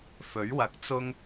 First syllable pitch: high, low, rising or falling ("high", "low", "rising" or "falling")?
rising